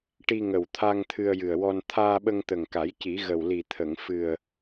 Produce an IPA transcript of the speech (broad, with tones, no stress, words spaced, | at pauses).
ʈi˧ŋə˨˩wt̪ʰa˧ŋ t̪ʰɨ˧ə̯jɨ˨˩ə̯wɔ˧n t̪ʰaː˧ɓə˧ŋt̪ə˨˩ŋka˨˩˦j ci˨˩˦ɣə˨˩wli˨˩ t̪ʰə˨˩˨ŋ fɨ˨˩ə̯